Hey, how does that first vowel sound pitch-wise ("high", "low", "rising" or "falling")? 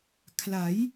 rising